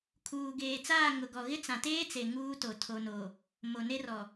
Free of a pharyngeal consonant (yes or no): yes